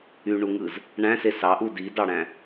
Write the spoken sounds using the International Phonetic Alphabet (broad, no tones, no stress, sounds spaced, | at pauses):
y ɳ u ŋ ɯ z | ɳ æ̃ s e s ɑ ʔ u d i d ɑ ɽ æ̃